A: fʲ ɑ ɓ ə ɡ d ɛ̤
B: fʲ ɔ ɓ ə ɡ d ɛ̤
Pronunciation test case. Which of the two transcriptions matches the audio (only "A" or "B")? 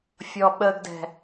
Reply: B